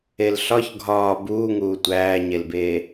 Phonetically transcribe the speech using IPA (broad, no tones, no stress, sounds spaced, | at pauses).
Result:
e l ɬ ɒ ç ɡʱ ɒː b uː ŋ uː tʷ æː ɲ e l b eː